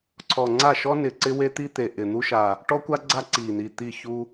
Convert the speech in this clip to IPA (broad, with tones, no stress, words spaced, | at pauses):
ǀʰɔ˨˩ŋ͡ǀa˥˩ʃɔ˥ nɪ˨˩ǀɪ˥we˥t̪i˥ t̪e˨˩ʔɪ˨˩n̪u˥ʃa˨˩ | ʈɔ˥kʷa˥ ɡ͡ǀa˥ ǀi˨˩n̪i˨˩ t̪i˥˩çu˥